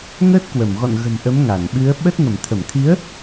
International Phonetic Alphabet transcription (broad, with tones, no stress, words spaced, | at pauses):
ŋəː˦˥t̚kwə˧˩mɣɔ̰˧˨nɣə̤˨˩m ʔə˨˦m ŋa˧˩nɓɨ˨˦ə̯ ɓə˦˥t̚ ŋə˧˩mt̪ʰə˧˩mt̪ʰi˨˦ə̯